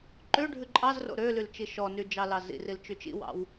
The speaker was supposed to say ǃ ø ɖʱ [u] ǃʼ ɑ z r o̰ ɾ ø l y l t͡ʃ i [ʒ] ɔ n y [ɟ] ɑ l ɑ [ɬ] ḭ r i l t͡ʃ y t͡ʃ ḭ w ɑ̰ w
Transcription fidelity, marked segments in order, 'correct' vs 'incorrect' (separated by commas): incorrect, incorrect, incorrect, incorrect